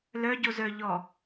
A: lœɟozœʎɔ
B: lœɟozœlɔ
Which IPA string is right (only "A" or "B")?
A